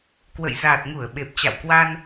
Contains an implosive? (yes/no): yes